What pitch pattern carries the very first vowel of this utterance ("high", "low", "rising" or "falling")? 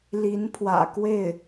rising